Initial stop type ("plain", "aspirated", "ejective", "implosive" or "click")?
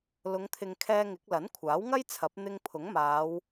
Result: aspirated